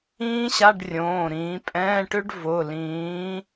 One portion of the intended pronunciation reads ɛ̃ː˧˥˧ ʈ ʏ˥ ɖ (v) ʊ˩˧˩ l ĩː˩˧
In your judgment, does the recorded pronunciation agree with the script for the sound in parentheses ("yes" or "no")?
yes